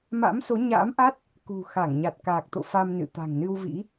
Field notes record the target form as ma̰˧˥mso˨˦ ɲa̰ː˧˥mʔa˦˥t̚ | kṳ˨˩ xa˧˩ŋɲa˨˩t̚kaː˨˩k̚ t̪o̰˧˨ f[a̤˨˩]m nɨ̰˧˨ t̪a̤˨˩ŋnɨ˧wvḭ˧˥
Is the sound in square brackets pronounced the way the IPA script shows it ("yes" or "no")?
no